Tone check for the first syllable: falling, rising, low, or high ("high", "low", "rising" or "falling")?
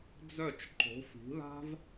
falling